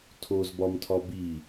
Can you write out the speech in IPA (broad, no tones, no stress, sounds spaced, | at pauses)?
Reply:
tʰ o z b ɒ m tʰ ɒ b i